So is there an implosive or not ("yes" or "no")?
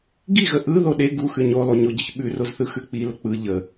yes